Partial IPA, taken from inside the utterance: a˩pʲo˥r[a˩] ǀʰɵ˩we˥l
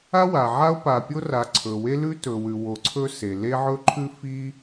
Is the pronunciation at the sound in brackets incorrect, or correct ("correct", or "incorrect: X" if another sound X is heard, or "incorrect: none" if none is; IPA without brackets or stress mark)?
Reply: correct